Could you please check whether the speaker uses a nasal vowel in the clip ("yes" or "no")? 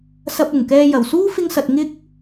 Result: no